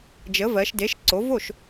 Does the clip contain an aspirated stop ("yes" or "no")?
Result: no